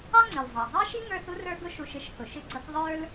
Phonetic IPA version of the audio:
ɑ˥ ŋ͡ǀ i˩ l zˤ ɑ˩ zˤ ɑ˥ ʃ i˥ ŋ ə˞˦ θ u˥ r ə˞˦ ɡ ʊ˦ ʃ u˨ ʃ ɪ˥ ʃ h ʊ˩ ʃ ɪ˦ ɡ͡ǀ ʌ˦ k ðˤ ə˞˥ l

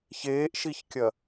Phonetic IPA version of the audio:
ç eː ʔ ʃ i ç kʲ ɐ

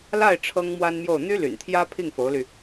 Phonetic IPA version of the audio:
l a˥˩ ɪ̯ ʈ͡ʂʰ ɤ˥ ŋ m w a˥ n m j o˥˩ ʊ̯ n̪ y˥ l y̰˨˩ n t̪ʰ j ä˥ pʰ i˥˩ ŋ f o˧˥ ʊ̯ l y˧

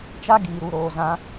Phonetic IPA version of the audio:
t͡ʃ a˦ ɡ iː˨ ɾ u˨ ɾ oː˨ z ã˧

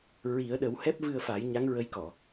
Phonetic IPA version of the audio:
ɹ i˨˩˦ ə̯ ɗ ə˨˩˦ w h ɛ˦˥ p̚ v ɨ˧ ə̯ f a˨˩˦ j ɲ a˧˥ ŋ ɹ ə˧˥ j k ɔ˨˩˨

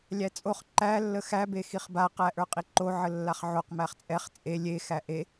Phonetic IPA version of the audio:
lʲ æ t͡sʼ o χ ǃ æ lː ə x æ b e x i χ b a q æ ʔ ə˞ qʼ i ǃ o ʕ ə lː a χ ʕ o q m æ χ t͡sʼ ɛ χ t͡sʼ e lʲ e x æ ʔ e

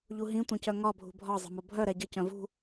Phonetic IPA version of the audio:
ʎ u ɦ ĩ tʷ œ̃ c œ ŋ ɒ bʱ ṳ bʱ ɒ zˤ ə̤ m o bʱ œ ɾ ɛ ɟ ə c œ̃ v ṳ

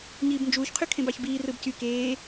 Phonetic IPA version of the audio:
ɲ iː b n d͡ʒ uː ç qʰ y kʰ ẽ b ɑ ç b iː r ɯ b c y k eː

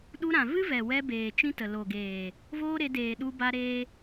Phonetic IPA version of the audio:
ɗ u˧ ɾ ã˨ v ɨ˦ v ɛ˨ w ɛ˧ b eː˨ t͡ʃ ĩ˦ t ə˨ l o˨ ɡ eː˨ | v oː˦ ɾ e˧ d eː˨ ɗ u˧ b a˦ ɾ eː˦

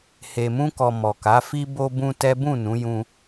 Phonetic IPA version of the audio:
h e˨ m ũ˧ k ɔ˨ m ɔ˨ k a˨˦ f i˧ b o˧ b ũ˧ t ɛ˦ b ũ˦˨ n ũ˨˦ j ũ˧

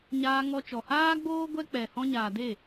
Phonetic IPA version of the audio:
ɲ aː˧ ŋ ɔ˧ t͡ʃ ɔ˨ h aː˦ ɡ͡b oː˦ ɡʷ ɛ˦ k͡p ɛ˨ h ɔ̃˧ ɲ aː˨ d e˦˨

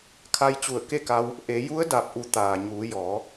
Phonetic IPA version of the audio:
kʰ a˧ j t͡ɕ u˧˩ ə̯ k e˥˨ k a˧ w | ʔ e˩˧ j u˧˥ ə̯ d a˧˩ p̚ ʔ u˩˧ t̪ aː˩ ɲ uː˩˧ j ɔː˩˧

